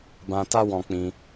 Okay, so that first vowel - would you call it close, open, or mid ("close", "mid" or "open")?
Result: open